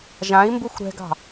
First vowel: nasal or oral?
nasal